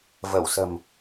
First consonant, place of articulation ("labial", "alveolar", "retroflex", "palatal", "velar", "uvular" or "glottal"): labial